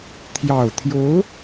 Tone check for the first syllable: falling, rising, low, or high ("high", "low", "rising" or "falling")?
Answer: low